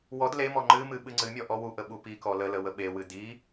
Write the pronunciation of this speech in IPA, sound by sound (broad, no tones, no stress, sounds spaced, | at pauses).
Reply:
w ɔ d l e m ɔ ŋ͡ǃ ɨ m ɨ ɓ ɨ ŋ͡ǀ ɨ mʲ ɔ ʔ ɔ w u ʔ ə ɓ u p i k ɔ l ə l ə w ə ɓ e w ɨ d i